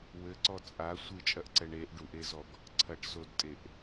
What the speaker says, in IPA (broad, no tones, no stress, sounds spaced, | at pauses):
w ɘ ǀ ɔ t͡sʼ a sʷ ɨ t͡ʃʼ ɐ ʔ ǀ ɛ ɳ e ʔ ɖ u ʔ e z ɔ ɡ | ǀʰ ɐ ʈ s o d tʼ e ʔ